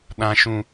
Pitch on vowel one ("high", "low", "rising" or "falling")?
high